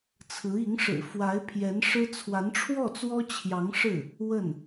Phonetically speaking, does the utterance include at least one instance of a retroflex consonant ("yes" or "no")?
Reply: yes